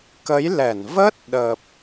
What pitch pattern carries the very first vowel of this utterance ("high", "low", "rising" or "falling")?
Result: rising